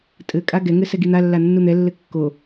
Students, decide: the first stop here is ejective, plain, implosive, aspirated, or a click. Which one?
ejective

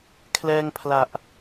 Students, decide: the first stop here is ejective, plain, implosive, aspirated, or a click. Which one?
aspirated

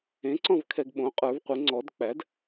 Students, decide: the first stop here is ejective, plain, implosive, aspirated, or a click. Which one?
click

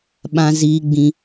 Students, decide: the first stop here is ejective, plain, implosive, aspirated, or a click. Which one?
implosive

